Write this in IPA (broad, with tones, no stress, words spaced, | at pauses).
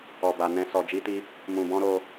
ɔ˨ba˨ nɛ̃˧ sɔ˧d͡ʒi˦ti˦ | mũ˨bɔ̃˧ ɾo˧